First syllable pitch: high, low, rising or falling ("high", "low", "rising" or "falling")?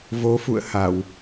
rising